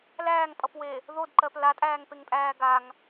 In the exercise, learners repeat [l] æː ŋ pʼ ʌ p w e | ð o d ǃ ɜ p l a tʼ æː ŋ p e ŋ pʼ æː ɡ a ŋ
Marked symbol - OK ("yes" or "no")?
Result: yes